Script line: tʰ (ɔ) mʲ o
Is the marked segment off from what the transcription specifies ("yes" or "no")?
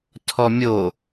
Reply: no